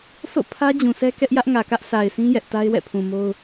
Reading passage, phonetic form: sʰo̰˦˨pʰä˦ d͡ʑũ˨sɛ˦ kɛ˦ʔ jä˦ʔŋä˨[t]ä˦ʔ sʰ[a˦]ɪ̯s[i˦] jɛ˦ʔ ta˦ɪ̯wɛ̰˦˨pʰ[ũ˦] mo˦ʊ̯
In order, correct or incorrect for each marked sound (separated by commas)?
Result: incorrect, incorrect, incorrect, incorrect